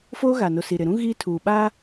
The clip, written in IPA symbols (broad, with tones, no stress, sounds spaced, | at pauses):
f oː˦ ɣ a˨ n o˨ s i˨ ɾ ɪ˨ ɾ ũ˦ ɣ iː˦ tʰ uː˨ ɓ aː˦